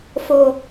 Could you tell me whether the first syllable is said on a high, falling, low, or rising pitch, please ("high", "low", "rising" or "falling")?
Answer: low